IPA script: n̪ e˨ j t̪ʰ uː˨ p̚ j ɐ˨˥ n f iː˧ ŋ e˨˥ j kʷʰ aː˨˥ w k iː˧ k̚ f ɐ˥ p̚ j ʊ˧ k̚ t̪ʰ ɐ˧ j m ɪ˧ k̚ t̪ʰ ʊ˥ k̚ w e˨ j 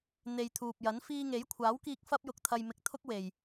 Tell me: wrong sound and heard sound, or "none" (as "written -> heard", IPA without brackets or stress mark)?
none